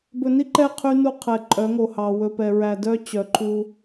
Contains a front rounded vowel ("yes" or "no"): yes